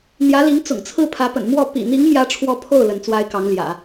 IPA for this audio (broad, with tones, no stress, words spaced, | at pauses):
n̪jä˧˥li˧˥ŋ t͡sʊ̰˨˩ŋt͡sʰɹ̩˥˩pʰä˧˥pə̰˨˩n mwɔ˥˩ pḭ˨˩n̪i˧˥ŋ mjä˥ʈ͡ʂʰwɔ˥˧ pʰo˥˩ʊ̯ lə˧˥nt͡swa˥ɪ̯kɑ˧˥ŋ ljä̰˨˩˦